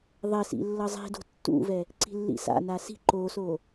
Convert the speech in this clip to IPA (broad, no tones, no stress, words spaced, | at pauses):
ðˤɛ sḭlːʌzˤi̤do̤ tːṵvɛ | ǀi̤lːḭsa̰na si̤ ǃoso